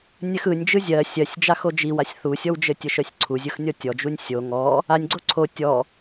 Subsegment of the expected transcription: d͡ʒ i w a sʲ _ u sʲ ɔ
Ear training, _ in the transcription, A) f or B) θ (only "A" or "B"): B